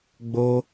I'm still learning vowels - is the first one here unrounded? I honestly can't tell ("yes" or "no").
no